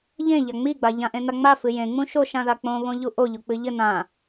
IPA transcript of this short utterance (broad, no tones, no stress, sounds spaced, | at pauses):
ʎ ẽ ʎ a ŋ͡m i ɡ͡b a ʎ ã ʔ ẽ n a ŋ͡m a f ɨ j ẽ ŋ͡m ũ ʃ o ʃ ã ð a k͡p õ β õ ʎ u ʔ o ʎ u k͡p ɨ ʎ ɘ n ã